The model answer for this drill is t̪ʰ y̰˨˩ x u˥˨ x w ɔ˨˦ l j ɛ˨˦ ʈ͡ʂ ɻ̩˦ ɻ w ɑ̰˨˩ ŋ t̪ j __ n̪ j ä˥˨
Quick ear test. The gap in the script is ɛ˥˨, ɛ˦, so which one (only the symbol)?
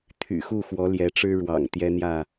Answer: ɛ˦